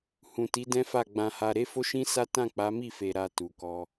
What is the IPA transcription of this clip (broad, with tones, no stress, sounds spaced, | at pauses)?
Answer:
h ũ˨ t i˨˦ d ɛ̃˦ f a˦˨ ɡ͡b ã˧ h a˧ ɾ e˦ f o˦ ʃ ĩ˦ s a˦ t ã˦˨ k͡p a˨˦ m i˦˨ f e˨ ɾ a˨ t u˨ k ɔ˧